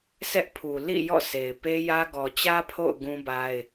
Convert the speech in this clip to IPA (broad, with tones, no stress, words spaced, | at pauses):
sɛ˦ʔpʰu˨ lḭ˦˨ jɔ̰˦˨se˨ɪ̯ pe˦jä˦ ɡɔ˨t͡ɕä˦ pʰo̰˦˨ʊ̯ ɡũ˦ba˦ɪ̯